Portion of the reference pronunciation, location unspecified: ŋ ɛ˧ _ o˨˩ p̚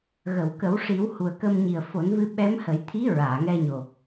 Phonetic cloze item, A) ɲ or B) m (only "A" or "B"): A